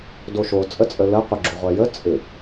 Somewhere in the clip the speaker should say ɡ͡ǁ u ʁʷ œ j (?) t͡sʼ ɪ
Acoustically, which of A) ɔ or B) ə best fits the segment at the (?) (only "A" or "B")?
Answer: B